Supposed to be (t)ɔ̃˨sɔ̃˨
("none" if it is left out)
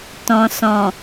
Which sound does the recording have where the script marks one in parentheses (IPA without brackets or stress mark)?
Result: t